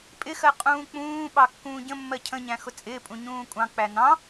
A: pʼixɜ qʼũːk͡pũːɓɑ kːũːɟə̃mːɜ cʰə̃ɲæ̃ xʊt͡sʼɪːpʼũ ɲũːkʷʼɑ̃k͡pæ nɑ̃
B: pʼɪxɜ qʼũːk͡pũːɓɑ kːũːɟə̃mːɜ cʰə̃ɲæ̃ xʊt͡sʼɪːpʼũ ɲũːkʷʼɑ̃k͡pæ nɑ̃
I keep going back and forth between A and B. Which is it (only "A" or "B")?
B